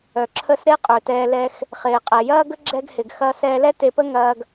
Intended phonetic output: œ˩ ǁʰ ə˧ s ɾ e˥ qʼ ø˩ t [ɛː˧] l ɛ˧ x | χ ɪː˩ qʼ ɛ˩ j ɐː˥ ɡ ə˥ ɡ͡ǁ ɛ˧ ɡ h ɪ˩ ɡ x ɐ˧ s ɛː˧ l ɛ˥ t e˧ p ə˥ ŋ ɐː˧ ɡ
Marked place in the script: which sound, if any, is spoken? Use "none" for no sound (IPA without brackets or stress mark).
ɛː˧